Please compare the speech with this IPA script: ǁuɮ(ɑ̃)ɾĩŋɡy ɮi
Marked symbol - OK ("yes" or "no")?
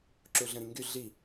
no